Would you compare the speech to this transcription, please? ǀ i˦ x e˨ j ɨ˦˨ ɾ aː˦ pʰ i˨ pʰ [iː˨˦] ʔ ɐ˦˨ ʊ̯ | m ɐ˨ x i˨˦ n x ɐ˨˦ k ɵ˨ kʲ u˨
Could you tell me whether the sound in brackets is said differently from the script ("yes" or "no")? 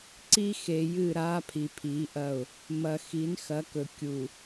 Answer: no